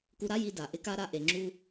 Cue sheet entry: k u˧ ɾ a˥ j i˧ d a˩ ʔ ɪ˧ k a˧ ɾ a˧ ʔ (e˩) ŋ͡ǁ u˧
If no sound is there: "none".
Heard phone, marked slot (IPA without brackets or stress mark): e˩